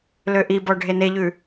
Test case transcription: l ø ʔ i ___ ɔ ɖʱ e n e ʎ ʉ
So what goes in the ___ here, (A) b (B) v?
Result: A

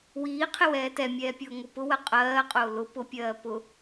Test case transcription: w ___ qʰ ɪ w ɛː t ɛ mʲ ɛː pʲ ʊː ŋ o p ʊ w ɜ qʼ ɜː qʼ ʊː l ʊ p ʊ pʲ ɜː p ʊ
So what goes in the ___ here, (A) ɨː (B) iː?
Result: B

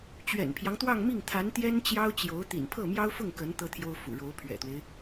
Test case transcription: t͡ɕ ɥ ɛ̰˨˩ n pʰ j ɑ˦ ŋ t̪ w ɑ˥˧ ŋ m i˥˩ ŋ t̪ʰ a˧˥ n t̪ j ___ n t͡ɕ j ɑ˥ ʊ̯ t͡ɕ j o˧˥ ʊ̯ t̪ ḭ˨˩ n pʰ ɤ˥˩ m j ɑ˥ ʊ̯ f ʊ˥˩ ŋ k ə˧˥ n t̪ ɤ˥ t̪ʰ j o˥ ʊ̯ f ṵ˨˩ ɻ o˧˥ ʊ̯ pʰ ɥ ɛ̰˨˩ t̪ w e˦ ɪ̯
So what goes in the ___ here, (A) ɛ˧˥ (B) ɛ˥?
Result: B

